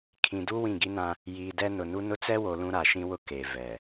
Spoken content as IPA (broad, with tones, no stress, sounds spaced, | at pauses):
kʰ ĩ˨ d u˦ w ĩ˦˨ ɡ i˦ n ã˦ | j iː˨ d ɛ˦ n ʊ˨ n u˦ n ʊ˦ t͡s ɛ˦ w o˨ l ũ˦ ɾ a˨ ʃ ĩ˦ w ʊ˦ k e˨ v ɛ˨